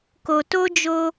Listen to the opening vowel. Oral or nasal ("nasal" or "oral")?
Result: oral